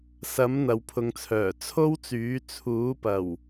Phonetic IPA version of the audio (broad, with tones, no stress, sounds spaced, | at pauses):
s ɐ˨˥ m n̪ ɐ˨ w pʰ ʊ˨˧ ŋ t͡sʰ œː˨˩ t͡sʰ o˥ w t͡s yː˨˥ t͡sʰ uː˨˥ p ɐ˨˩ w